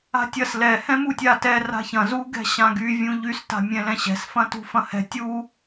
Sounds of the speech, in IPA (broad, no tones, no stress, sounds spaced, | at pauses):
a̤ tʲ ɐ s l ɛ h ɛ̃ m u tʲ a t ɛ r a̤ ç ɐ̃ z u ɡ ɛ̤ ɕ ã ɡ y vʲ ũ ʎ y s t a̤ mʲ ɛ̃ l ɛ̃ ɕ ɛ̤ s f ɐ̃ t ṳ f ɐ̃ h ɛ̤ tʲ u